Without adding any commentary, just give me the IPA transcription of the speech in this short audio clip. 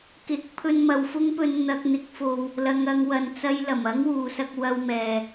k ɪ˨˥ k̚ pʰ ɵ˧ n m ɐ˨ w f ʊ˥ ŋ p ɵ˧ n n̪ ɐ˧ k̚ n̪ ɪ˨˥ k̚ f o˧ w | l ɐ˨˧ ŋ ɐ˨˧ ŋ w ɐ˨ n t͡s ɐ˧ j l ɐ˨˩ m ɐ˥ ŋ w uː˨ s ɐ˧ k̚ w ɐ˧ w m ɛː˨

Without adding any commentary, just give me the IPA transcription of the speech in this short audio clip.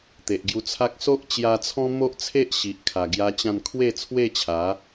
t̪ e˨ ʔ ɡ j u˧ t͡sʰ a˦ k̚ s o˦ ʔ t͡ɕ j a˧ t͡sʰ ɔ̃˦ m o˦ ʔ t͡sʰ e˦ ʔ ɕ i˨ ʔ kʰ a˨˩ ɡ j a˧ t͡ɕ ã˧ n kʰ w e˥˧ t͡sʰ w e˥˧ t͡ɕʰ a˨˦

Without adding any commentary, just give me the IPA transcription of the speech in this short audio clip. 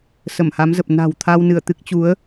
s ə˧˩ m h a˨˦ m z ə˨˩ p̚ n a̤˨˩ w t̪ʰ a˧ w n ɨ˧˩ ə̯ t̪ ɨ˦˥ k̚ t͡ɕ u˨˦ ə̯

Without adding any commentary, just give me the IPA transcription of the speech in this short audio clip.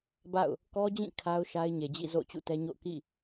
b a̰˦˨ ʊ̯ | k ɔ˦ d͡ʑ ĩ˦˨ kʰ a˦ ʊ̯ ʃ a˦ ɪ̯ ɲ e˨ d͡ʑ ḭ˦˨ z o̰˦˨ ʊ̯ t͡ɕ ṵ˦˨ t ɛ˦ ɲ o̰˦˨ ʊ̯ k ḭ˦˨

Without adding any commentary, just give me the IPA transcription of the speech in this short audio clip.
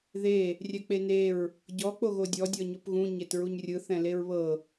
ð e | rʲ ɛ k͡p e n e ɹ | ɟ ɔ k͡p o ɣ o dʲ ɔ dʲ ɔ ɲ o p ɣ ũ ɲ e t ɹ u ɲ rʲ ɯ θ ɛ̃ l e ɹ β ɤ

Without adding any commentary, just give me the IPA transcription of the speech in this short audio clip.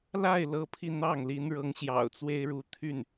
l a˥˩ ɪ̯ l ɤ˧˥ pʰ i˧ n̪ ɑ˥˩ ŋ l i˧˥ n ɻ ɤ˧˥ ŋ ɕ j ɑ̰˨˩ ʊ̯ t͡s w e˥ ɪ̯ ɻ u˧˥ t̪ʰ y˥˩ n

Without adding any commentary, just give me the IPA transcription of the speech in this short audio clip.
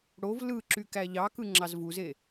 ɽ o v l ɯ ǁ y k æ ʎ ɑ k ɯ ŋ͡ǁ ɑ z v u z e

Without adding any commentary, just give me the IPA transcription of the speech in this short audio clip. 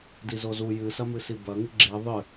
d i z o z u j ɨ s ɐ m ɨ s i b ɐ ŋ ɨ ɡ͡ǁ i ðˤ ɨ

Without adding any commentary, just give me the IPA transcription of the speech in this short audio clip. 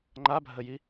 ŋ͡ǃ a bʱ ə j i

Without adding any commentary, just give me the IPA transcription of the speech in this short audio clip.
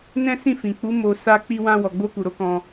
n ɛ̃˦ s ĩ˦˨ f ĩ˨ k͡p u˨˦ m o˧ s a˧ k͡p i˧ w ã˧ w ɔ˨ ɡ͡b o˧ k u˨ ɾ o˨˦ k ɔ̃˧

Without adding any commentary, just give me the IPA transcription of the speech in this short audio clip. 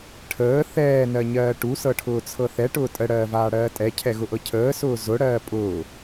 ʈʰ əː θ ɛː n ɜ ɲ ɜː ʈ u s ɤ ʈʰ ʊː t͡sʰ ɤ θ ɛ ʈ ʊː tʼ ə ɽ ɜː v aː ɽ ɜː tʼ ɛ cʰ ɛ ɣ ʊ ʔ ɤ cʰ əː s ʊː z ʊ ɽ ɜː pʼ ʊː

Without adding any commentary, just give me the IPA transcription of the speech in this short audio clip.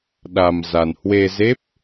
ɗ a˧ m z a˧ n h w e˧ z e˦˥ p̚

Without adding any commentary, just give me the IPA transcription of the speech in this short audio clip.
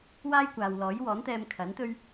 w aː˥ j kʷ aː˨ w l ɔː˨˥ j w ɔː˨˥ n t̪ ɛː˧ m kʰ ɐ˨˥ n t̪ ɵ˥ ɥ

